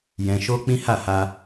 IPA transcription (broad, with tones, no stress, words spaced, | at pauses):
jɛ̃˦ ʃo˦k͡pĩ˦ha˦˨ha˧